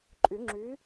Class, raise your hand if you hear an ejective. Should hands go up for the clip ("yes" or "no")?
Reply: yes